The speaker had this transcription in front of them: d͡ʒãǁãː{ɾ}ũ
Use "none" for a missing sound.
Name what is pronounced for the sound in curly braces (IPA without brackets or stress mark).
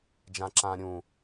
ɾʲ